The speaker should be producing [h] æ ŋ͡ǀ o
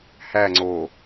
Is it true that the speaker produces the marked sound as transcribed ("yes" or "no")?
yes